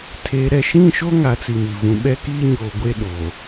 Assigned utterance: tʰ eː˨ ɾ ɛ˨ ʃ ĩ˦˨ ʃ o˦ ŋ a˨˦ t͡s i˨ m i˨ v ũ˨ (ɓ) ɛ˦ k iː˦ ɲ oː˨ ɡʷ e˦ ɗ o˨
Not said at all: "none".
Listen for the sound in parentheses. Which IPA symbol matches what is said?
ɓ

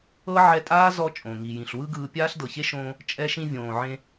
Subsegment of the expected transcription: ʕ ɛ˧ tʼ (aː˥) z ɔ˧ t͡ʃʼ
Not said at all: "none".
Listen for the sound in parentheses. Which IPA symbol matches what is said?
aː˥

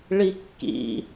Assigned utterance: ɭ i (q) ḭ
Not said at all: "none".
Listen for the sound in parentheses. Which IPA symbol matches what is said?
kː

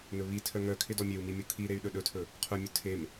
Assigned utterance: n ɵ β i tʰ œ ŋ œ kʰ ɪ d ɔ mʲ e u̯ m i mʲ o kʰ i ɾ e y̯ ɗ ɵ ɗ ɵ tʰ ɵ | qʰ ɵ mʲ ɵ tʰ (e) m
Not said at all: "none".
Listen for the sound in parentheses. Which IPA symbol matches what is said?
e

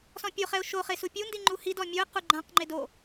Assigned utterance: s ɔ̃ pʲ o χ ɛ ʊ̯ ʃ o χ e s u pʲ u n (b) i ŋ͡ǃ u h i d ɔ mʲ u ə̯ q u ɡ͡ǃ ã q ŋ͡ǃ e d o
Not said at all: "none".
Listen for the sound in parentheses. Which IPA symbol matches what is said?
d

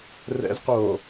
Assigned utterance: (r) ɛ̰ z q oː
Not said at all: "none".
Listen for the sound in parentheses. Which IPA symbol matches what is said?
r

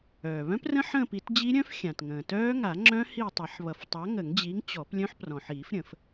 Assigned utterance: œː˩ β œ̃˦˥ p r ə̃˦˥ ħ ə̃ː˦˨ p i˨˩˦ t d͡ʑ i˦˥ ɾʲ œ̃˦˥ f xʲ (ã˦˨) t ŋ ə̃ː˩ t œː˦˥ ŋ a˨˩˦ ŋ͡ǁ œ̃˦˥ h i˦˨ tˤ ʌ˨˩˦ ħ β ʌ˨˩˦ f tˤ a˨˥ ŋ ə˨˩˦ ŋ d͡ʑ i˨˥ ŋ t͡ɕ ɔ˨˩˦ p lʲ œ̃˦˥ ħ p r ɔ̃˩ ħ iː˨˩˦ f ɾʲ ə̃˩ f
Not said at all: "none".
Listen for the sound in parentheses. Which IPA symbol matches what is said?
ã˩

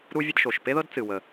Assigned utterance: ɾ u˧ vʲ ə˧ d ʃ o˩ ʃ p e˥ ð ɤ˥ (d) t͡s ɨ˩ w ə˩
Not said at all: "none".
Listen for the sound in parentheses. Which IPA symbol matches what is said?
d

